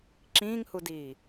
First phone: ǁ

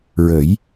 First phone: ɹ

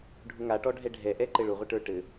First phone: ɖʱ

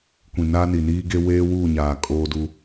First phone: kʷ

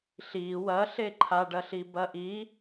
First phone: ɬ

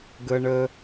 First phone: ɡ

